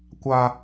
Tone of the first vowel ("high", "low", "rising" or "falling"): high